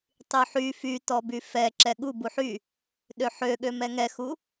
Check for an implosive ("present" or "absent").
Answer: present